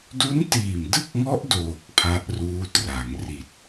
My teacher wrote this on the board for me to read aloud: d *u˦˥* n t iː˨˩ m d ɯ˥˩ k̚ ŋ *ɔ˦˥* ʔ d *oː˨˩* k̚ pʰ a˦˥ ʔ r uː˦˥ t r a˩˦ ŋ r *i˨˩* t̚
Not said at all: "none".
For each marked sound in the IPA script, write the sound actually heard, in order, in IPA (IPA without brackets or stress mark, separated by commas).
u˦˥, ɔ˦˥, oː˨˩, i˨˩